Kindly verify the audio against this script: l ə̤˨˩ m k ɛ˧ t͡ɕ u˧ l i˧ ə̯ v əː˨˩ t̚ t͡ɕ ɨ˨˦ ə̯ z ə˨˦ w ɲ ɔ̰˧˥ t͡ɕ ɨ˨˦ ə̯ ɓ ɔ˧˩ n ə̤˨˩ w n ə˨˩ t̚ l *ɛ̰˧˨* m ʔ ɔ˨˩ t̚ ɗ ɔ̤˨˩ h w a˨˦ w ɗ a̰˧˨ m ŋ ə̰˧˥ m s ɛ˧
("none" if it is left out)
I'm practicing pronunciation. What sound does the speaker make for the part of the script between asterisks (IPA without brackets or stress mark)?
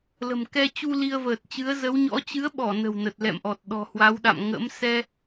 ɛ̰˧˨